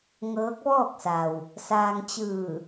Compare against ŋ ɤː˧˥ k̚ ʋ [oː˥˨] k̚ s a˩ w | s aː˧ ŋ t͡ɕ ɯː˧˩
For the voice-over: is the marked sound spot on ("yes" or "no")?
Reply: no